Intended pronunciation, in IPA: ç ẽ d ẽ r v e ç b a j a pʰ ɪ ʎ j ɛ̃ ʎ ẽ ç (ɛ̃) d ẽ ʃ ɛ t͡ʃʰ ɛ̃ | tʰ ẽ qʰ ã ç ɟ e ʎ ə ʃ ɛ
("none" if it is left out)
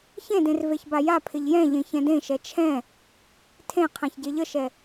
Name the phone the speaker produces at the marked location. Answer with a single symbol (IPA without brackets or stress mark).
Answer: ɛ̃